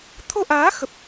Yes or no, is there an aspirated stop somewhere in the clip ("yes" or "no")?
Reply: yes